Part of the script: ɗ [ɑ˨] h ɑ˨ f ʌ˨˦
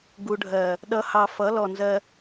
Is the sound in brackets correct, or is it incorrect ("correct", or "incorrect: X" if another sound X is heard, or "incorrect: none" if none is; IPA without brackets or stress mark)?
incorrect: ʌ˨